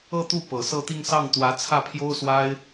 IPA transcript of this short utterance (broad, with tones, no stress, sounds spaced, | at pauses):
ɤ˥˧ t̪ u˥˩ p ɤ˨˩ s ɤ˥˧ t̪ i˥˧ ŋ s ɑ˥˩ ŋ t̪ w ä˧˥ t͡sʰ ä˥˩ pʰ j o˥ ʊ̯ s w a˥ ɪ̯